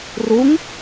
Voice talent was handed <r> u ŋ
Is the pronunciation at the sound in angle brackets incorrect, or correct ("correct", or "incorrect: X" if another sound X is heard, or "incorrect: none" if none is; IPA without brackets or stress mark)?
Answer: correct